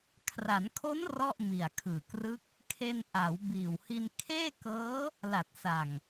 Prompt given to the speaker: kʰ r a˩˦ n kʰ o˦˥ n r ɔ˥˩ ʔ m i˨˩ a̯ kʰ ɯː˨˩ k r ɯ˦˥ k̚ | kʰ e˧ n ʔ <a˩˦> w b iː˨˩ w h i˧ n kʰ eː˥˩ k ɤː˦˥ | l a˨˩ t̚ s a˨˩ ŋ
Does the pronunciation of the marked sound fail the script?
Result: no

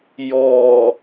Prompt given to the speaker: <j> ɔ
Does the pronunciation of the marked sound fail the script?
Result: no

